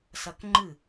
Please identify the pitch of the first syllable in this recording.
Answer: falling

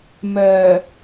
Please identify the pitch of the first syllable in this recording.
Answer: low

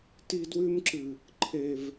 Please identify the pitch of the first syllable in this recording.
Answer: high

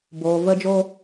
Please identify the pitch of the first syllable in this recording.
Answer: low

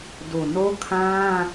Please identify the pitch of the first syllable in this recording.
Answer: low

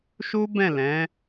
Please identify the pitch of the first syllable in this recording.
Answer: high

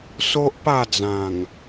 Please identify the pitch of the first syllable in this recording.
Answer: high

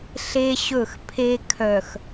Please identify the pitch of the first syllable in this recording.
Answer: high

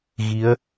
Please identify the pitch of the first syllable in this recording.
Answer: rising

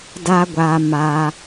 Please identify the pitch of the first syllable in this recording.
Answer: high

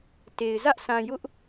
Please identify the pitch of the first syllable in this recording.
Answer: low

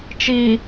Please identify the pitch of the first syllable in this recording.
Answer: low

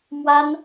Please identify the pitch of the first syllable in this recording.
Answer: high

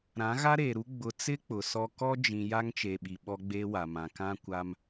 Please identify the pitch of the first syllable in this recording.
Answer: rising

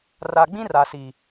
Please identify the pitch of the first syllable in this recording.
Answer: low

